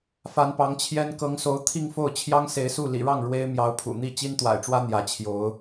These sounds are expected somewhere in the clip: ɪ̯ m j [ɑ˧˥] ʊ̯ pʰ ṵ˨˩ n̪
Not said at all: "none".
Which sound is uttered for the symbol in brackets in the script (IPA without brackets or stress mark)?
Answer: ɑ˧˥